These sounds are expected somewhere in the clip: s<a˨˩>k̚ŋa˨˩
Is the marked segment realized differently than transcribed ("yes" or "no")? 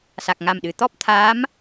no